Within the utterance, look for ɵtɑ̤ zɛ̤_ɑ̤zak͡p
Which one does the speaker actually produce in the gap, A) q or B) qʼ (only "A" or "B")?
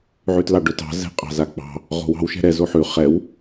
B